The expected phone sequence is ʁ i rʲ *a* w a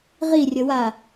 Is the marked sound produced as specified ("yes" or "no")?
no